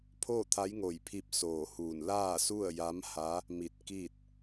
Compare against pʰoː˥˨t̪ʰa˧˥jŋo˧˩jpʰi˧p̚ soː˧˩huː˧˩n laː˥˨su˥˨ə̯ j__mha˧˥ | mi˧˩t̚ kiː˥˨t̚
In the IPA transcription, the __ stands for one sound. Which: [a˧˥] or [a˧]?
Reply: a˧˥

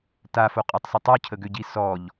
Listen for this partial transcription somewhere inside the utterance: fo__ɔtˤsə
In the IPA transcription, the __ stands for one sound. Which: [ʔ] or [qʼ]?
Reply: qʼ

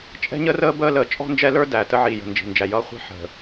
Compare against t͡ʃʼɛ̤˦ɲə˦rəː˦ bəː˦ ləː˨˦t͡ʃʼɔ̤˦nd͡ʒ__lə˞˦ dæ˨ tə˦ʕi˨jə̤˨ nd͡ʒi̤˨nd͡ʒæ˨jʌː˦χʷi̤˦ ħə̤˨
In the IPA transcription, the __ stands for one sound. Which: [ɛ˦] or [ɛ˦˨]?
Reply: ɛ˦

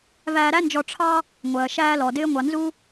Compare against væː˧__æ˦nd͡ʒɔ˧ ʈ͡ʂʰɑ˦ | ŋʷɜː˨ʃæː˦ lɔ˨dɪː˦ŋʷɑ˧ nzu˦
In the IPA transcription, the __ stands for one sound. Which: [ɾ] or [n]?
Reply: ɾ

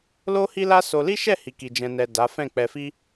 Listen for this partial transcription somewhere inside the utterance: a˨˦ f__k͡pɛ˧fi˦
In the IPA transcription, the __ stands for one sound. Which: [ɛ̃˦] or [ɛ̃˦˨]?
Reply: ɛ̃˦˨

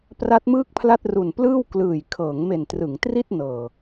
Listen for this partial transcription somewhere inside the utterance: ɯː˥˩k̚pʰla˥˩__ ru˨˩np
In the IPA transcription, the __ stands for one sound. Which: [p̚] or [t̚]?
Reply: t̚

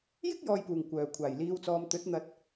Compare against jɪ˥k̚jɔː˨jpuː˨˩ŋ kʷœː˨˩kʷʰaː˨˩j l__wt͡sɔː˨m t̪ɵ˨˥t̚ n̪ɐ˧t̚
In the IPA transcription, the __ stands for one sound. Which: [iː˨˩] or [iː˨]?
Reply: iː˨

